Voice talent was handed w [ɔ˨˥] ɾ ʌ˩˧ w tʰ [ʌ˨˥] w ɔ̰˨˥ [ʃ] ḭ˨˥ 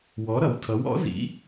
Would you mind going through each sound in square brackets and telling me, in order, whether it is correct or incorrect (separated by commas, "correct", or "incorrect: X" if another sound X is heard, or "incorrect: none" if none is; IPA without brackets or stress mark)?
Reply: correct, correct, incorrect: z